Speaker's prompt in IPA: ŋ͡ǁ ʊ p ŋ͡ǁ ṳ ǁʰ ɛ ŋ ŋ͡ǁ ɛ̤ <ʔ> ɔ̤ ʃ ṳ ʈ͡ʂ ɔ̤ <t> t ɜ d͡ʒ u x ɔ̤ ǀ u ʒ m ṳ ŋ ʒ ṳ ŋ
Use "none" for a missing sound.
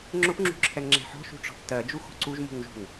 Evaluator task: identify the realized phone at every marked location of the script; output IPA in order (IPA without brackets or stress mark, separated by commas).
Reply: ħ, θ